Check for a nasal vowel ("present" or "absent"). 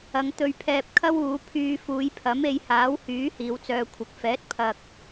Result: absent